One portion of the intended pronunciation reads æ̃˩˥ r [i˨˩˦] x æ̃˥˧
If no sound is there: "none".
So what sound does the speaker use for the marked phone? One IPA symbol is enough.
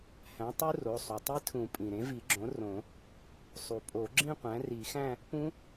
i˨˩˦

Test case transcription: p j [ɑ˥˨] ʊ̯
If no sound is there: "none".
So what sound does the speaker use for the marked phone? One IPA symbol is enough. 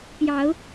ɑ˨˦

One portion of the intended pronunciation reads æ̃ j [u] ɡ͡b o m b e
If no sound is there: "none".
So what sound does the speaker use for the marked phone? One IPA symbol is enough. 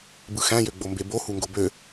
ø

